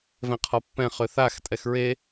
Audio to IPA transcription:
v ɛ̃ qʰ ɔ pː ɛ̃ χ ʏ θ a x tʼ ɛ x ɹ e

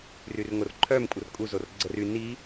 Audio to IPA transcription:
r y r ŋ o r ǃʰ œ m kʷʼ ə r kʼ u z o r ɡ͡ǀ ə r y n i

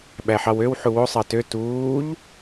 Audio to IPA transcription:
ɓ æ ħ ɑ w ø w ħ u w o sˤ ɑ t ø t uː ʎ

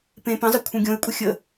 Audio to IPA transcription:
p ẽ p ə̃ zˤ ɘ kʷʰ ẽ ɡʲ õ e̯ kʷʼ ə xʲ ə

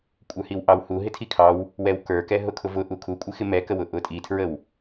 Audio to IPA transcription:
kʷʼ ə˞ h i w ʔ ɑ w h u ɦ ɪ tʰ i kʰ ɑ w | w ɛ w k ə˞ k ɛ ɦ ʊ kʰ ʊ v ʊ ʔ u kʰ u kʷʼ ɪ x ɪ m ɛ k ə w ʊ ʔ ʊ tʼ i tʰ ɹ ə w

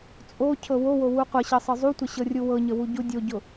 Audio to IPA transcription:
t͡sʼ o cʰ ɤ w o w o w u qʷ ɤ ɕ ɤ sˤ ɤ zˤ u tʷ ə ɕ ɤ rʲ u w ɤ ɲ ə w u ɟ u dʲ o ɟ ʊ

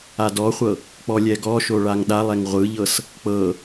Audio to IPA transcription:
a d ɔ χʷ ɤ | k͡p ɔ lʲ ɛ ɡ ɔ ʃ o ɭ a ŋ ɗ a lˠ ɛ ŋ ʁʷ ɯ ʎ ɤ s | k͡p ɤ

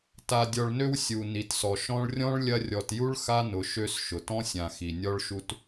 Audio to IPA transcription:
t a˨ dʲ ɔ˨ ɭ n ø˦ w sʲ u˩ n i˩ t s ɔ˩ ʃ ɔ̃˦ ɭ rʲ ɔ̃˥ ɭ lʲ ɐ˦ rʲ ɔ˨ t j u˥ ɭ x a˥ n ʊ˨ ʃ ø˦ s ʃ ʊ˩ t ɔ̃˥ sʲ ã˨ x i˩ nʲ ɔ˦ ɭ ʃ u˦ t

